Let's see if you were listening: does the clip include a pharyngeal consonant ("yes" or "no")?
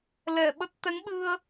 no